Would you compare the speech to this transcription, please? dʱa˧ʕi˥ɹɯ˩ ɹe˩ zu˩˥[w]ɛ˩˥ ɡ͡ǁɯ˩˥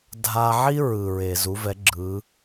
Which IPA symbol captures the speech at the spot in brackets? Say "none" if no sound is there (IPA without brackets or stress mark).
v